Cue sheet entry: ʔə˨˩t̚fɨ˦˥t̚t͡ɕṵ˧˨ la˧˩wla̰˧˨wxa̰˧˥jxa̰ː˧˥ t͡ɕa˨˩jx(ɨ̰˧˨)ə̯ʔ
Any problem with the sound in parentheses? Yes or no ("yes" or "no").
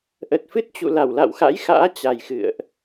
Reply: no